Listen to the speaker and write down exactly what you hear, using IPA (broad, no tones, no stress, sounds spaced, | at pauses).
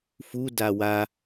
f u d a w a